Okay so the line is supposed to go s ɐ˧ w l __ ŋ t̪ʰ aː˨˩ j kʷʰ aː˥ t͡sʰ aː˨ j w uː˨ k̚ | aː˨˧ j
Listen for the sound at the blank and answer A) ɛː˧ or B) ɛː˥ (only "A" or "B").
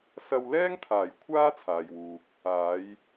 B